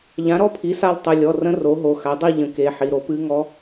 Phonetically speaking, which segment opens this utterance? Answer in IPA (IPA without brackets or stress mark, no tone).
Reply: ʎ